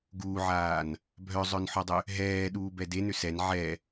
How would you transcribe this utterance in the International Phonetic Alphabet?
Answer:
ɡuːʕaːn | bʱœzˤœnħɔdˤʏ | ɦɛːɗuːbɛ denʏ sɛn ʕɛ

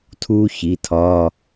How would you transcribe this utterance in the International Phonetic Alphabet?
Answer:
tʰuː˥çi˩˧˩tʰɒː˧˥˧

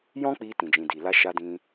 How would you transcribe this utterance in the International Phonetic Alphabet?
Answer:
jɔ̃˦k͡pi˧ tĩ˨d͡ʒĩ˨di˨la˧ ʃa˧dĩ˧

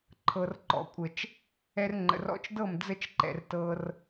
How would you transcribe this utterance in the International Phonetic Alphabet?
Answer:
ǃʰɤ˨rǃɔ̰˨kʷʼə˨t͡ʃ | ɛ˧rŋ͡ǃə̰˨rɔ̰˧t͡ʃdɤ˦˨m d͡zə˧t͡ʃǃɛ̰˨r tɤ˧r

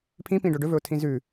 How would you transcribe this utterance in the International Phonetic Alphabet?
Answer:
pʰĩpĩɖo ɖɵvɵʊ̯tʰĩ zʉ

